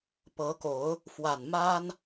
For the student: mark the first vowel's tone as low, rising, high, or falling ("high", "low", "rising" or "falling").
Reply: rising